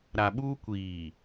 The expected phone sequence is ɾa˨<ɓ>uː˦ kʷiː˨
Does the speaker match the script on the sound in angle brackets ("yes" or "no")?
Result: yes